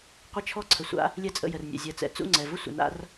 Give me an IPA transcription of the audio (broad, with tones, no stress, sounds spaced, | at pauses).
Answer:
qʷ ɪ˦ t͡ʃʰ ɔ˦ ǀʰ ə˨ sʷ a̰˦ | lʲ ɛ˦ t͡sʼ ə̰˦˨ j ə˨ r nʲ ɛ̰˨ zʲ ɛ˨ t͡s ɛ̰˨ t͡s ṵ˦˨ ŋ͡ǀ ɛ˨ v ʊ˦ sʷ ə̰˨ n a̰˦ r